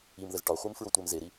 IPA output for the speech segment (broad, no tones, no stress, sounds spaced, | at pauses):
i m ð ə z ʈ ɒ χʷ i m f ɹ o tʷ ɛ m z e ɾ i